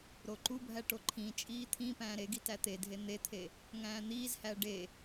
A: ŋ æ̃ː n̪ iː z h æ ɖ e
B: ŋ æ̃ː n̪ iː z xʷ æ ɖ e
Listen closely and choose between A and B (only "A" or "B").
A